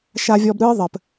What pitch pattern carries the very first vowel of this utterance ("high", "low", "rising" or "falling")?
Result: low